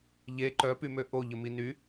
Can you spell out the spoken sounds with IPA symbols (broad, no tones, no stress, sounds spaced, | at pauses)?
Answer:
ʎ e ǃ œ p y m ø ʔ o ʎ ə m i n y